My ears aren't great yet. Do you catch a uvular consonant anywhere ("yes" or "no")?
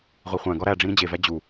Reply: yes